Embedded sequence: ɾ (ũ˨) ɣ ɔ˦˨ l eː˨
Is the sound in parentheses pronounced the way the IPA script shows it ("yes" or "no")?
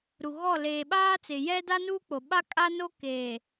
no